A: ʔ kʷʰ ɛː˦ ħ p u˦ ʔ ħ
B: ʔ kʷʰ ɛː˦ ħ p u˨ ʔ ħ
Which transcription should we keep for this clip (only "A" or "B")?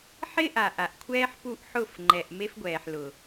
A